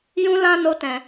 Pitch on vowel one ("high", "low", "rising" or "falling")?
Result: high